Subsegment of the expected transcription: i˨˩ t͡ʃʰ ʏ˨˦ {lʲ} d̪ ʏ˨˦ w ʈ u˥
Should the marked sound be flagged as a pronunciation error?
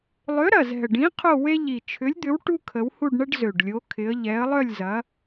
no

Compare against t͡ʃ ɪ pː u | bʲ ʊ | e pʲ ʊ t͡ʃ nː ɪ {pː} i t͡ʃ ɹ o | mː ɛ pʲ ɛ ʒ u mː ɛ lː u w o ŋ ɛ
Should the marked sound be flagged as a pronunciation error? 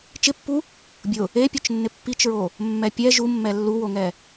no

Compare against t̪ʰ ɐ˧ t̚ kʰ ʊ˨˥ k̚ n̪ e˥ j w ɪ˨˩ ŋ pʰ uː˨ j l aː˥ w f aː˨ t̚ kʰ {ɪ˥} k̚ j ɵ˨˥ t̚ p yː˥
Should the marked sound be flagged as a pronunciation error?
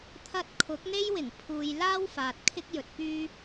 no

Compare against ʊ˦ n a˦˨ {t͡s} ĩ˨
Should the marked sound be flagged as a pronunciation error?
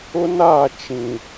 yes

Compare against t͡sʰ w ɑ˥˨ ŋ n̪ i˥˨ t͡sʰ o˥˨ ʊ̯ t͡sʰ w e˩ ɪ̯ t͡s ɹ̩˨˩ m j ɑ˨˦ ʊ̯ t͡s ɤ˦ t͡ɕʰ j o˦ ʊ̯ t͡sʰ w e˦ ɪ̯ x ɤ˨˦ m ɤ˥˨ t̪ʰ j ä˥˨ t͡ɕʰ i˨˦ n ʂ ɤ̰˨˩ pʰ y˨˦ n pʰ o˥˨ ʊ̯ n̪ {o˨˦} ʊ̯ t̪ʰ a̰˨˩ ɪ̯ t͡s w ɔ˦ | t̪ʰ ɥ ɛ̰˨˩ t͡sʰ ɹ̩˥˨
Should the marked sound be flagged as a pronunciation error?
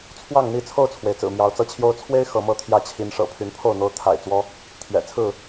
yes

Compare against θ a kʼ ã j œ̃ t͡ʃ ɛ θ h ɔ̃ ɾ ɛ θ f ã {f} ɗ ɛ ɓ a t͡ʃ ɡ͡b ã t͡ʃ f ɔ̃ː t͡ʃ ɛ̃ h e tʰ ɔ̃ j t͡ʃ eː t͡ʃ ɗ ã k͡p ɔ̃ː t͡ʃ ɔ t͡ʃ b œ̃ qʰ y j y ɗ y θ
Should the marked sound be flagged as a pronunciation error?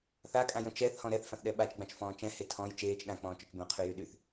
yes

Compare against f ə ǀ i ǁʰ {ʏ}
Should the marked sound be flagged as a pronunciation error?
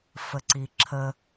yes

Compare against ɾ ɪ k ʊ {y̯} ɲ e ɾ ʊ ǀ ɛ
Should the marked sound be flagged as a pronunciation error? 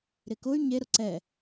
no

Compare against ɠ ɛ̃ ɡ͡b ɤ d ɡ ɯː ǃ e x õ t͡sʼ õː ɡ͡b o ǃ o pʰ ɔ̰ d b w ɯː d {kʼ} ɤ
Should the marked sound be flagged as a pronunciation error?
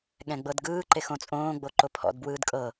no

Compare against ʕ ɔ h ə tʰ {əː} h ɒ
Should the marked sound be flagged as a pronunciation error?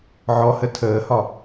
no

